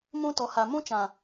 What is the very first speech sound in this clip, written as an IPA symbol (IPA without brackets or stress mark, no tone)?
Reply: m